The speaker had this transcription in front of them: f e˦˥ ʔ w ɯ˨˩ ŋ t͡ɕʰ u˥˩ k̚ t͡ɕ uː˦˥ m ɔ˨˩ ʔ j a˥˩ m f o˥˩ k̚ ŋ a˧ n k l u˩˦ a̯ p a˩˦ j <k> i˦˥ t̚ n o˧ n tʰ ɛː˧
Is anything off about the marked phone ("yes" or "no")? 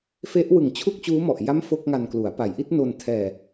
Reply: yes